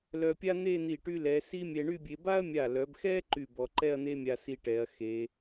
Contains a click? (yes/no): yes